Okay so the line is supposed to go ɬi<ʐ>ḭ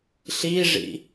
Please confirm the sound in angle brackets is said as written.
yes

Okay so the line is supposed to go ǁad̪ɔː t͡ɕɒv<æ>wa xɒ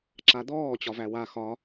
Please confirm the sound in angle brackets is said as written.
yes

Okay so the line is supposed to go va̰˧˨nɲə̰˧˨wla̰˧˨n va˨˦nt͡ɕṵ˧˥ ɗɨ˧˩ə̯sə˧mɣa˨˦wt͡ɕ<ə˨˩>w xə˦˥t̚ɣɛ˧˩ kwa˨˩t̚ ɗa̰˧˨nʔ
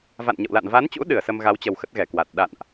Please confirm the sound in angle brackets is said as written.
yes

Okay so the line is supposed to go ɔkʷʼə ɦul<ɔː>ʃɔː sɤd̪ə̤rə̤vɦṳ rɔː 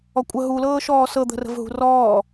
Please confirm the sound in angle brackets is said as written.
no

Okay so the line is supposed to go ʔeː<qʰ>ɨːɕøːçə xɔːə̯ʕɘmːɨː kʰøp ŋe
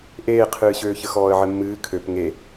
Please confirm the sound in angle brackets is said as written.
yes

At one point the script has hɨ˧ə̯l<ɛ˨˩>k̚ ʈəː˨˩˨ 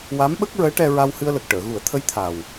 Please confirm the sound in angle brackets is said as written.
no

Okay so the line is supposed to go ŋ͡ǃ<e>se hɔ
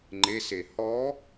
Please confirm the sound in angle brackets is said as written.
yes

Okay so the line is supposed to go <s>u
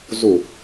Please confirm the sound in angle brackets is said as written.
no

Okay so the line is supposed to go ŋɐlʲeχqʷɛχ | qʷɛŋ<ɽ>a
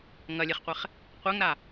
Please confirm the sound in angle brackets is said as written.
no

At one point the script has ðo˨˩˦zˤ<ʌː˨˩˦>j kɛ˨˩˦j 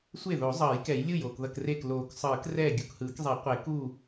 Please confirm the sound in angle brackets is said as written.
yes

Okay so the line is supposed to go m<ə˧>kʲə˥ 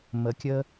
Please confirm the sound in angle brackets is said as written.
yes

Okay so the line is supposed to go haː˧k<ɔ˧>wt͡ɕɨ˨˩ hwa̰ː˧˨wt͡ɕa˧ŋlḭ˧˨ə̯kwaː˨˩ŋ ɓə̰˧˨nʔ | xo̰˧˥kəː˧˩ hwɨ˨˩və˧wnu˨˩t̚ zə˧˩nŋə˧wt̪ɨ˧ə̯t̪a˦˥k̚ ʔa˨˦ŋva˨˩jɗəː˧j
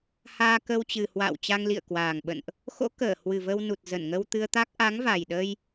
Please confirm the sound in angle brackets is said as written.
no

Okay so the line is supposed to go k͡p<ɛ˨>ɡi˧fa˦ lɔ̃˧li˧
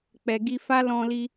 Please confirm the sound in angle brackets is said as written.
yes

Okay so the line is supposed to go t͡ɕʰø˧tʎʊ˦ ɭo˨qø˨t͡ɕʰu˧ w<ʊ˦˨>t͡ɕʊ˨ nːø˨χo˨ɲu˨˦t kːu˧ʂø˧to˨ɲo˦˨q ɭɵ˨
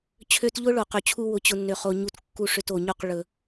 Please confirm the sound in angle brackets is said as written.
no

